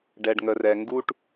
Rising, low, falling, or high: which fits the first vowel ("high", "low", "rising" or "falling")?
low